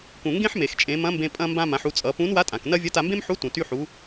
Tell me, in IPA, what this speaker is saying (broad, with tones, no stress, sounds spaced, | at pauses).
k ũ˩ ŋ ɡ ẽ˥ ħ m e˩ x t͡ʃʼ ẽ˩˧ m ɐ̃˧˥ m b ẽ˧ pʼ ɐ̃˧ m b ã˧ m ã˩˧ ħ u˩˧ t͡sʼ ʌ˩˧ p ũ˧˥ n w a˧˥ tʼ ã˩ k n ɐ˥ vʲ ɐ˧˥ t a˧ m b ẽ˥ m ħ u˧˥ t ũ˩ t y˧ ħ u˩˧